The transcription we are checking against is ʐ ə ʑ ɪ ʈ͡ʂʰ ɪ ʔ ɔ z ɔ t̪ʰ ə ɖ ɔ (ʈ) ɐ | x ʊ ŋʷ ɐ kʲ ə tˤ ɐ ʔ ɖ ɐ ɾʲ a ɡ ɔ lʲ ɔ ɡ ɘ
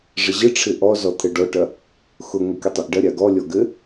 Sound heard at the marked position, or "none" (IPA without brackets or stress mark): ʈ